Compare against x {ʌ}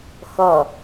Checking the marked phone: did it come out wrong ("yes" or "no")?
no